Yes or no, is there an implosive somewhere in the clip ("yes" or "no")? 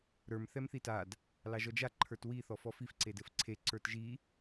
no